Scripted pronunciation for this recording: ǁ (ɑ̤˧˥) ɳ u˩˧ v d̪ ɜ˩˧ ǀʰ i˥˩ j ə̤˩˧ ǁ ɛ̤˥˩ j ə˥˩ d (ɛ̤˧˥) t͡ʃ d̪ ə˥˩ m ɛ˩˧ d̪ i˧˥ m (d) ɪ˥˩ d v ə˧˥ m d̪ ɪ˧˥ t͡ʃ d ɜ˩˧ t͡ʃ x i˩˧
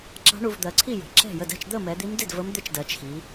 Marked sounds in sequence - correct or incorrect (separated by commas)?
correct, incorrect, correct